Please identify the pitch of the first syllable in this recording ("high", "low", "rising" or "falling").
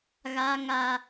high